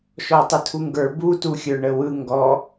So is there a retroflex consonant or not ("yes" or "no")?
yes